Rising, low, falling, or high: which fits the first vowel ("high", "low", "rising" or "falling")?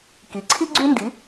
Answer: rising